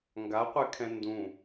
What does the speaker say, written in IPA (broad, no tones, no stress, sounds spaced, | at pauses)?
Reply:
ŋ ɡ a qʷ ɛ kʰ ɛ̃ n d ũ